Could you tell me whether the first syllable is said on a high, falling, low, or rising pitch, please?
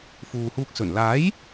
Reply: low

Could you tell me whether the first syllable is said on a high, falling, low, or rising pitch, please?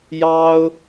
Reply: high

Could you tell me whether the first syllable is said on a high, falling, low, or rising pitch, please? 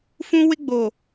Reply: high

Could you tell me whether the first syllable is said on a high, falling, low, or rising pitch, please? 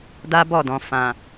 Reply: high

